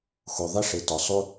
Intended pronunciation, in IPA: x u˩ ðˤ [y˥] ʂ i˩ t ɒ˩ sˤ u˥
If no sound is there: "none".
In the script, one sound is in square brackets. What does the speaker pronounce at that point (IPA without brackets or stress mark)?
i˥